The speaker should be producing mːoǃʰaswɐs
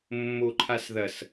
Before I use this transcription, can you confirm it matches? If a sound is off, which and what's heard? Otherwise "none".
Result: w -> ð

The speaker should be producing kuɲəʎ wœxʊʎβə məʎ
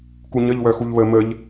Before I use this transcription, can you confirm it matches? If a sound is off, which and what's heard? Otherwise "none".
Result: ʊ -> u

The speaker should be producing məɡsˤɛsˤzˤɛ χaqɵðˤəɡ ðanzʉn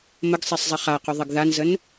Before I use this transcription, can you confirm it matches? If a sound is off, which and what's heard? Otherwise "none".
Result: ʉ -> ə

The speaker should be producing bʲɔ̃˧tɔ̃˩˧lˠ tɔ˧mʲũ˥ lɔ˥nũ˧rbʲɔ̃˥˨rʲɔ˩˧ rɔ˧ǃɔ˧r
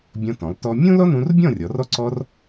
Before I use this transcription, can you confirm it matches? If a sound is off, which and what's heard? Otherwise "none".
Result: ǃ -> ǀ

